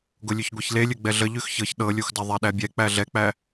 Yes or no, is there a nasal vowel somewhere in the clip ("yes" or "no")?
no